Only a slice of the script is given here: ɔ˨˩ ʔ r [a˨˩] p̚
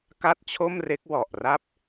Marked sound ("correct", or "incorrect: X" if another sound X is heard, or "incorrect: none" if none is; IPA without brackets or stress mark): incorrect: a˥˩